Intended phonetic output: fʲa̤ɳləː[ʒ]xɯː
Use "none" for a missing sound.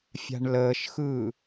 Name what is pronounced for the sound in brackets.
ʃ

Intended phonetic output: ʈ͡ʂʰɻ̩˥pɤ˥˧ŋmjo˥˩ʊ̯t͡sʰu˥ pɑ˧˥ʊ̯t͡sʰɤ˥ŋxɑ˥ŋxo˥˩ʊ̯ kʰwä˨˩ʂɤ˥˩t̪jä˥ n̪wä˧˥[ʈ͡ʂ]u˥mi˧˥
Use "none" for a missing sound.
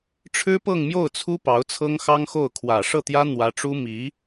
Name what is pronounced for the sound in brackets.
ʈ͡ʂ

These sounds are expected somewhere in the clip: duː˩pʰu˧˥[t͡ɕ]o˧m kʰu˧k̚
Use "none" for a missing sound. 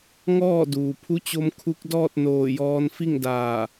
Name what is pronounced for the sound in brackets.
t͡ɕ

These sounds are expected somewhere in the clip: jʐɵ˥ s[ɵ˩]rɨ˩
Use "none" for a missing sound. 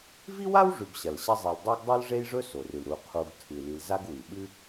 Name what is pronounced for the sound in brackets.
o˩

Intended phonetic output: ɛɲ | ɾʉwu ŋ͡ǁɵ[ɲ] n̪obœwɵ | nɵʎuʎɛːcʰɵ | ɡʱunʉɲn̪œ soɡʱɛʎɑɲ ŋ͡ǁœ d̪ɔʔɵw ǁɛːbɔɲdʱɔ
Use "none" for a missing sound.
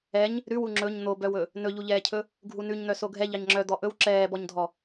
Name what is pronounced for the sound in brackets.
ɲ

